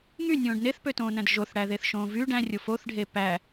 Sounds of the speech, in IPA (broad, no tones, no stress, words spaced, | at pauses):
ŋynʲõːɖ neθpøtõːnæ̃d ʒoθɽæðeθʃõː vy ɖæ̃rʲo foθɖʱe pæ